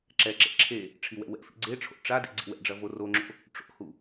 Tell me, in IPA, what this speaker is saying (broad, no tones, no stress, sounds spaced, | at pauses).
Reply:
ǁ ɛ ǁ ḛ ǁʰ e | ʈ͡ʂʰ i w ɛ̰ w ɛ̰ f ḭ ɡ͡ǀ e ʈ͡ʂʰ o̰ ʈ͡ʂ a d ḭ ɡ͡ǀ ḭ w ɛ̰ ɖ͡ʐ ɐ v o r o ŋ͡ǁ o̰ | ʈ͡ʂ o̰ h u